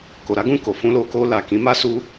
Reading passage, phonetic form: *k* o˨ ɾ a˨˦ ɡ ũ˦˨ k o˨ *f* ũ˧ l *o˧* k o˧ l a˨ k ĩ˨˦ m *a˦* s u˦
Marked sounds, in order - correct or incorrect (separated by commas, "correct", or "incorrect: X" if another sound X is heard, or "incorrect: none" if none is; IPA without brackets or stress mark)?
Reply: correct, correct, correct, correct